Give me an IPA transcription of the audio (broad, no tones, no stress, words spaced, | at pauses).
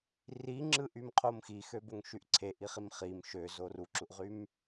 riŋ͡ǁɯʔymqʰom xixøboŋʃyʔ ǀʰeʔiχim χim ʃøzo ruǁuʔʁym